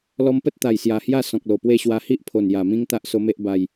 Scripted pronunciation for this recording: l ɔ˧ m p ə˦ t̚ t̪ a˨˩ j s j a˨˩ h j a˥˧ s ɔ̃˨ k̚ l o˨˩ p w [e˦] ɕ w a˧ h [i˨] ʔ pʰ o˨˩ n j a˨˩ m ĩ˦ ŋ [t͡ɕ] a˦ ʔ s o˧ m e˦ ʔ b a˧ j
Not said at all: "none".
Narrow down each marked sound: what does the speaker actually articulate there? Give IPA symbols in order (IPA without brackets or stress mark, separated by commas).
e˥˧, i˦, t̪